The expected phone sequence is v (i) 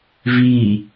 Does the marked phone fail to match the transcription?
no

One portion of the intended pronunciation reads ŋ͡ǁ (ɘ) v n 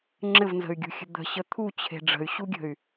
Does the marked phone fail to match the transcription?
no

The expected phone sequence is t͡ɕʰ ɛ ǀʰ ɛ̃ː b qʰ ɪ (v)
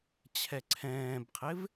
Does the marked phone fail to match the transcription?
no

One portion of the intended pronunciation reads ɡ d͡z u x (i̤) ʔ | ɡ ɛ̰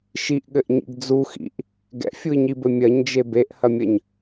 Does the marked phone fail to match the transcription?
yes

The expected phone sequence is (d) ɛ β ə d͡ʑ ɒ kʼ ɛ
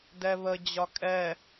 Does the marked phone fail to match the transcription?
no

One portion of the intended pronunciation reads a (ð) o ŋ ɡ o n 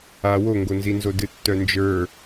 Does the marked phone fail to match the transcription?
yes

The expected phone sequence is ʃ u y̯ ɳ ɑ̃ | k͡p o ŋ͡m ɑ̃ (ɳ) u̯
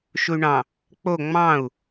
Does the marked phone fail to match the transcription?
yes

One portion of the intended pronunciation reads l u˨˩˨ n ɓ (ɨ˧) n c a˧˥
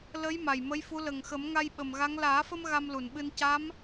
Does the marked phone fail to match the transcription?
no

